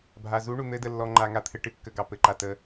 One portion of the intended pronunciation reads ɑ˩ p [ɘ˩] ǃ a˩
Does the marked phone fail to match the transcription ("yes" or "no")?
no